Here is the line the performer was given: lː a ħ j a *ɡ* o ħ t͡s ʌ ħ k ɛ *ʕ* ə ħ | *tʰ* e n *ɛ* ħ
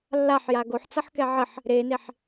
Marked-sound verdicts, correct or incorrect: correct, correct, incorrect, incorrect

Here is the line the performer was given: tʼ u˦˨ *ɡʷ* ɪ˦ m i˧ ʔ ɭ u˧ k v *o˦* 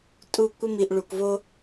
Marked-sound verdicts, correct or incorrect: incorrect, correct

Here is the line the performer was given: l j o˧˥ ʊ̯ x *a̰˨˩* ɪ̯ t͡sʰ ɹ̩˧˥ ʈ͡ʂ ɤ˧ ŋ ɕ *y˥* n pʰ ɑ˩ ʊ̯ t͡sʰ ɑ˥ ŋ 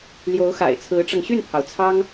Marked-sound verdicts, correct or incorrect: correct, incorrect

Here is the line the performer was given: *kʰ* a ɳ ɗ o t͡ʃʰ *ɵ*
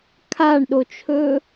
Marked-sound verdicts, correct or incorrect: correct, correct

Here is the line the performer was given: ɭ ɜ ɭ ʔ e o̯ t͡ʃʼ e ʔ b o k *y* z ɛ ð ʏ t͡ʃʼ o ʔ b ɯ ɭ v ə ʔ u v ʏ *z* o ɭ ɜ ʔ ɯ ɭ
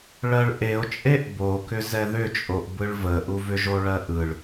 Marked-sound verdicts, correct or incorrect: incorrect, incorrect

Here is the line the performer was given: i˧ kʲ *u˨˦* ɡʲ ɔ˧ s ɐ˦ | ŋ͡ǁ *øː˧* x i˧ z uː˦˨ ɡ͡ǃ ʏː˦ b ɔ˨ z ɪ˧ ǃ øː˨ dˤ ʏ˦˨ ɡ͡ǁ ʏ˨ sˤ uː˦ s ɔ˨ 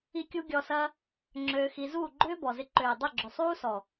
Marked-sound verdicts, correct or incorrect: incorrect, correct

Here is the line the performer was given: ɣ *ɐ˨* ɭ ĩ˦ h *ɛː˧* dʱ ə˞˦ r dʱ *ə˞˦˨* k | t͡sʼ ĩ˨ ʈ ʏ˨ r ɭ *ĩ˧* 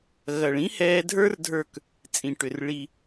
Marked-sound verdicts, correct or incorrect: correct, correct, correct, incorrect

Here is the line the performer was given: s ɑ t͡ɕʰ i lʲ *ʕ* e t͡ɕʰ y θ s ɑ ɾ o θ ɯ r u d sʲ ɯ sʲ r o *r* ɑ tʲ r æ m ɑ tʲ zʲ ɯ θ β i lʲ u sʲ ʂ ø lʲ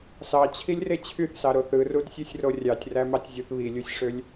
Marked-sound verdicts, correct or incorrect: incorrect, incorrect

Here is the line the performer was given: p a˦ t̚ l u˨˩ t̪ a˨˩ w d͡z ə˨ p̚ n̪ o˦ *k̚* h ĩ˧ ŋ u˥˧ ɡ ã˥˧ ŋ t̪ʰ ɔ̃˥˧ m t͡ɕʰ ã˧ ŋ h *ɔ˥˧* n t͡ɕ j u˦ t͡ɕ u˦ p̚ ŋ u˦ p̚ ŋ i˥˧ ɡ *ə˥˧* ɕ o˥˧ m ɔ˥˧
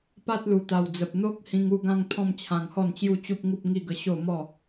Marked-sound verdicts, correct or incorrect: correct, correct, correct

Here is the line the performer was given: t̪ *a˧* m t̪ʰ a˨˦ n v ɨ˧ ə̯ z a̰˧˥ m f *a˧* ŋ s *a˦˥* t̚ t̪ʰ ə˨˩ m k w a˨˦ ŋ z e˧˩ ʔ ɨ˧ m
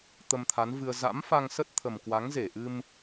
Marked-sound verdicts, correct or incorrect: incorrect, correct, incorrect

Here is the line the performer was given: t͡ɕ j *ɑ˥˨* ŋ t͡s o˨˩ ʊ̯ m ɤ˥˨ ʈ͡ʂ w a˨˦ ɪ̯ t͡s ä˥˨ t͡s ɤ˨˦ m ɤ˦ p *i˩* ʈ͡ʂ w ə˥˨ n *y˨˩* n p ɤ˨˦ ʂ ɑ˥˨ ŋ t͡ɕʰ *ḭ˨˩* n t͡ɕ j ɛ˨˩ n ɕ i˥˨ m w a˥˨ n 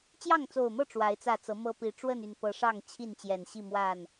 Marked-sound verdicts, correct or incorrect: correct, incorrect, correct, incorrect

